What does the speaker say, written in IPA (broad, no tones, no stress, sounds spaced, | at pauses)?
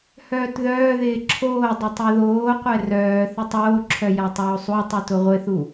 h œː t ð œː ð ɪː ǁʰ oː dˤ ɪ tˤ u ð oː qʷ ɛ r œː θ ɪ tˤ oː ǁʰ œ j a tˤ oː sˤ u tˤ u t ʊ ʁʷ ɪ θ u